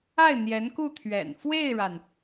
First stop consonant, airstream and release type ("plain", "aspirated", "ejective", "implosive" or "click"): plain